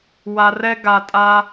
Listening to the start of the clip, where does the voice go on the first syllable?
low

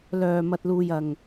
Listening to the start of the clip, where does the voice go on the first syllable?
low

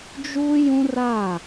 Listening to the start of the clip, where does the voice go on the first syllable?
high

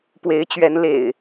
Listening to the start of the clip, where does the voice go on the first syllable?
rising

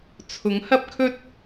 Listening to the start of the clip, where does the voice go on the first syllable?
rising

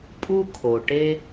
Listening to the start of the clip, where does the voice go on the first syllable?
high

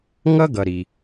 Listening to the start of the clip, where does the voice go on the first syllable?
high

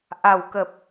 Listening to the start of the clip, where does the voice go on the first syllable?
low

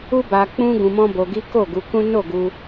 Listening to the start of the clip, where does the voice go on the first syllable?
high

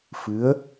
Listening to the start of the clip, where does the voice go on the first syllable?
rising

